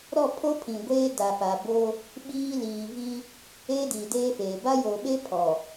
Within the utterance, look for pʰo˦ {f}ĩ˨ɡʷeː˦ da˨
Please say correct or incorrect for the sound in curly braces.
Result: incorrect